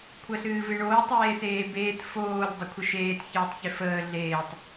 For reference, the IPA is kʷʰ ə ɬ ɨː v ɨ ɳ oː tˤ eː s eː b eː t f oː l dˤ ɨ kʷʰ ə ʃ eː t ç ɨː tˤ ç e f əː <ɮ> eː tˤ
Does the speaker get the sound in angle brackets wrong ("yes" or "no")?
no